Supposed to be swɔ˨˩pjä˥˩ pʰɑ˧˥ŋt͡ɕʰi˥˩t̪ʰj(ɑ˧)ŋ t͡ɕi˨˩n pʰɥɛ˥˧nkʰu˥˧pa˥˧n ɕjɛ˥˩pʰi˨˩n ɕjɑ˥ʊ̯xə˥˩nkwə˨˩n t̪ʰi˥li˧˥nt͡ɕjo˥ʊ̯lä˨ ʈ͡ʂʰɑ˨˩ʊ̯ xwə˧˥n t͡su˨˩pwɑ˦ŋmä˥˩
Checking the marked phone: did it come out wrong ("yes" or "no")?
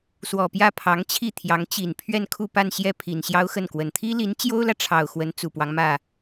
yes